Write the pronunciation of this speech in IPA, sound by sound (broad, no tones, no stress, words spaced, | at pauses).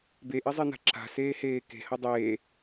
beʔezˤena̤ ǁa̤seːheː ke̤hɐ dˤeː